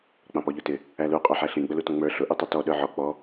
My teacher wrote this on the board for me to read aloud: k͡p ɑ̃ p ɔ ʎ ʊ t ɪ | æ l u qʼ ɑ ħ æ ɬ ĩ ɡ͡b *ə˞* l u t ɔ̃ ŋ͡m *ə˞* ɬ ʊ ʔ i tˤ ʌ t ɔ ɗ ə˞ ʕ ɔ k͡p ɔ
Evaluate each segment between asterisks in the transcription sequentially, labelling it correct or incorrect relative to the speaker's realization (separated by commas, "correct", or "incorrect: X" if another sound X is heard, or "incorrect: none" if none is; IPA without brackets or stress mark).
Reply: incorrect: ə, correct